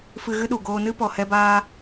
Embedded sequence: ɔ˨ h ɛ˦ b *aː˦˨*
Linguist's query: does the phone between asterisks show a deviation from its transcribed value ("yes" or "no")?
yes